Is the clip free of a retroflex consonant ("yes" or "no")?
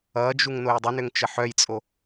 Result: yes